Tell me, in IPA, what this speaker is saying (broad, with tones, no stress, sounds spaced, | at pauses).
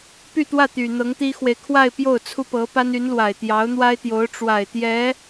p y˥˧ t̪ w ä˥˩ t̪ y˨˩ n̪ ɤ˧˥ ŋ t̪ i˥ x w e˨ ɪ̯ kʰ w a˥˧ ɪ̯ p j o˥˩ ʊ̯ t͡sʰ u˥ p ɤ˧˥ p a˥ n y˧˥ n l w a˨˩ ɪ̯ t̪ j ɑ˧˥ ʊ̯ n̪ w a˥ ɪ̯ t̪ j o˧˥ ʊ̯ ʈ͡ʂ w a˨˩ ɪ̯ t̪ j ɛ˧˥